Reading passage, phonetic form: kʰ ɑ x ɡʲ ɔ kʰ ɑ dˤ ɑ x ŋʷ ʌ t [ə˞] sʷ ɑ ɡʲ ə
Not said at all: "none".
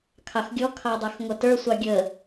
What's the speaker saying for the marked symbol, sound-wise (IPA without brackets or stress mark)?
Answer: ə˞